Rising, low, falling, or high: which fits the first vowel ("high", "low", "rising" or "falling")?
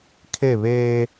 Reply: falling